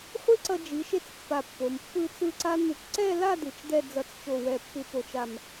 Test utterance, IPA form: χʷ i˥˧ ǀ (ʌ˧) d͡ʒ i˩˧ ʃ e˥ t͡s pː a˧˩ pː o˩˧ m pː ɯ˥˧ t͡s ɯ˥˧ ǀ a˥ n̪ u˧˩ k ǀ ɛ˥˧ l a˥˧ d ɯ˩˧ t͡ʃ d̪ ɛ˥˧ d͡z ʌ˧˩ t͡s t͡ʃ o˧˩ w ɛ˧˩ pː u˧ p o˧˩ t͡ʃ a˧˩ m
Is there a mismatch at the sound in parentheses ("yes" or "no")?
no